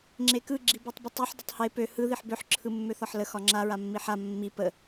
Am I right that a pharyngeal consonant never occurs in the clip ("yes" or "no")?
no